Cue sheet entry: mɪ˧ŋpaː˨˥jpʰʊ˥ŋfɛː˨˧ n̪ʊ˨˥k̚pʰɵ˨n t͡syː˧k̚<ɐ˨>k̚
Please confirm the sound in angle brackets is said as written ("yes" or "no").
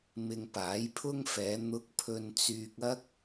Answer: no